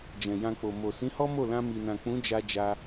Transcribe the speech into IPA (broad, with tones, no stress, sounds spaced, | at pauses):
d͡ʒ ɛ̃˨ j ã˧ k͡p o˨ m o˨ s ĩ˨˦ h ɔ˦ m o˦˨ l ã˧ m i˨ n ã˨ k͡p ũ˨˦ d͡ʒ a˧ d͡ʒ a˦